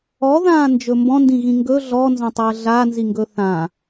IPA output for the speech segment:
ɔðãː nd͡ʒɵmbɔ̃ndĩ ɣĩŋɡɵ ɮɔnzɔ̃tˤəː ɮanziŋɡɵ θã

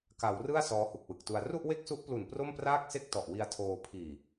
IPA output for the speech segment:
ka˩˦wrɯ˥˩a̯ sɔː˦˥hu˨˩k̚wɯ˨˩k̚tu˧a̯ ru˥˩ʔwe˥˩k̚su˦˥ʔplu˨˩n pro˥˩mpraː˥˩k̚se˥˩k̚ tɔ˨˩ʔwi˧a̯tʰoː˧ pʰiː˨˩

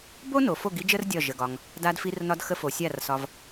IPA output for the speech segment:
bo˦no˨ fo˦˨ɡi˦d͡ʒə˦r dʲɒ˦˨ʒə˧ɡɒ˧ŋ | da˧dfi˧rnɒ˧dxə˧ fo˨sʲa˦˨rsɒ˧v

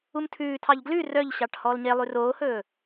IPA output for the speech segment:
umtʰʉːtʰɑʎ ɡlʉ rœʎɕɑʈ hɔːlɲelˠʉ roːhɵː

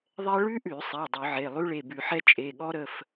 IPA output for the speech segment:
ðˤɛ˥ ɭʉ˥ʔʉ˧˩˧sˤɛ˩˧˩ dˤʉ˧˩˧ʕe˩˧˩ lˠʉ˥ɭe˩˧˩bʉ˧˩˧ħɛ˥ t͡ʃʼe˩˧˩ɠɔ˥ɾə˩˧˩f

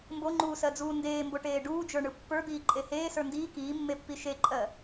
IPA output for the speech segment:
mboŋ͡ǃuːsɜd͡zuː ndeːmboʈeː ɖuːd͡ʒə˞ɳɯ pːə˞d̪iːǃʼe heːsə˞ ndiː kiːmːepːi ʃeǃʼɜ

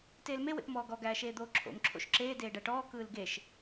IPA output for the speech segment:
teːlme wḛpmɔːɡɔ ɡæːʃeːd̪oːǁʰo̰m ǁʰo̰ʃǁeː deːɖæʈɔː kɯːlɡeʃ

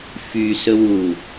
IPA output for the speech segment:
fy sɵwu

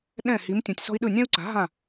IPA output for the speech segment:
ɗɛ̃˥˩hi˩˥m tʲũ˩tʲsɔ̤˥i̯ɗɯ˥˩ nʲɛ̃˥u̯ǀa̤˩˥ ɦã˥˩

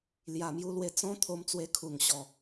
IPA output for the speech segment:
lja˨˩mju˧lwe˧ t͡sɔ̃˦ t̪ʰo˧mt͡swe˧kʰu˨˩ŋ ɕɔ˨˩

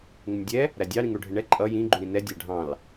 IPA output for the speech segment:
ŋɪnʲdʲɛ | ɾædʲɑ ɾĩŋɽuɖʱɪɳɛ ǃʼʌ jĩ ɡ͡ǃuɾĩnɛ dʲæɖʱɑ̃l

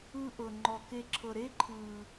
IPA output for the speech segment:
ɯ˦ʔɤ˨ ŋ͡ǃɔ˨ke˧ǁʰɤ˨ ɾe˦ǃʰɯ˨

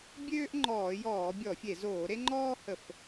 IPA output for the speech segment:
bʲøː˥ʔŋ͡ǃɔː˧˩˧jɔː˧˩˧ bʲɔ˧˩˧fʲe˧˩˧ zoː˧˩˧ɾe˥ŋ͡ǃɔː˥hə˧˩˧f

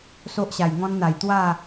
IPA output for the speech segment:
so˦ʔɕa˨˩jŋɔ̃˦n n̪a˨˩jt̪wa˥˧

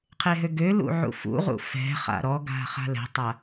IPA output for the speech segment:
qʰeɦøɡølṵ ʕṵfṵʁṵ fɛ̤χa̰ ɾɔɡa̤ χa̤lɛ̤tˤa

